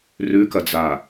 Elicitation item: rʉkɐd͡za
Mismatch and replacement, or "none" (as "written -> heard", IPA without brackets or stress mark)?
none